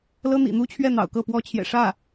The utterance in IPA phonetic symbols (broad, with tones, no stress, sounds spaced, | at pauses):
l ɤ˥ n̪ ḭ˨˩ n̪ u˥ t͡ɕʰ ɥ ɛ˥˩ n̪ ɑ̰˨˩ ʊ̯ k ɤ˥˩ p w ɔ˥ t͡ɕʰ j ɛ̰˨˩ ʂ ä˥˩